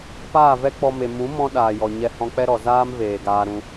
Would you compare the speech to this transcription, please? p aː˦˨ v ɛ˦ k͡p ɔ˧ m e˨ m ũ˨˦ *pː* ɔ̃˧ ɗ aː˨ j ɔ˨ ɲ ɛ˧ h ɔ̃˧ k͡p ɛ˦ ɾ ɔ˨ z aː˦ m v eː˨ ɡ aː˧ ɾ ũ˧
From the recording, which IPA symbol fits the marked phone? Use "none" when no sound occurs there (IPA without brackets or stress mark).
m